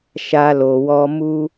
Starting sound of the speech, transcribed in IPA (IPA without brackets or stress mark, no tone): ʃ